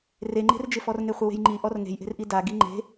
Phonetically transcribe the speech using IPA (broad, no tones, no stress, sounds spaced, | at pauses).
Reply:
r e ŋ͡ǃ e̤ r d͡ʒ ɪ f ɔ r ŋ e χʷ ɪ w e̤ j ŋ͡ǃ i ʔ ɔ r ŋ e̤ j ʔ e̤ r ʔ i d a ɡ i ŋ͡ǃ e̤